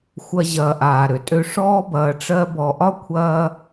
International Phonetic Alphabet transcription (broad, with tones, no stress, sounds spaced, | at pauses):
xʷ ɐ˧ ʑ ɐː˨ ʔ aː˨ ɾ ø˨ tʼ ø˧ ʂ ɔː˦ b ɐː˧ ʈ͡ʂ ɜ˦ b ɔ˨ ʔ ɒ˦ kʷʰ ɐː˦